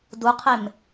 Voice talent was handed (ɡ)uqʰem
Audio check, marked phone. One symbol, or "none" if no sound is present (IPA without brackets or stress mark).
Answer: d